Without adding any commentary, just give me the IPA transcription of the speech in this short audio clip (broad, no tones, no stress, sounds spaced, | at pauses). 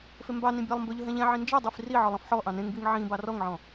f e m b ɑ n ĩ bʲ ɑ lˠ m b ɵ ʎ ɵ ɦ ɛ̃ ʎ ɛ̃ ʕ ĩ n d͡ʒ ɛ dˤ i f r i ʕ ɔ lˠ ɔ̃ f ħ ɔ ʔ ɑ̃ n ẽ ŋ b i ŋ ʕ ĩ b ɑ r ɔ ŋ ʕ ɔ̃